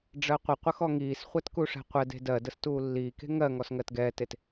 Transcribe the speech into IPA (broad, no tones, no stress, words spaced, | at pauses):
ɖ͡ʐɜqʷəqʷə xɔŋiːsχʷɛt kuʂɛ̤qʷɛde̤ dɜdəs tuːlːiːke̤ ŋɜŋɔs ŋɜtɡɛːtet